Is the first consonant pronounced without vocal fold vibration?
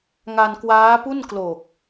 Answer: no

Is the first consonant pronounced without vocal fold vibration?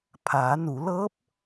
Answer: yes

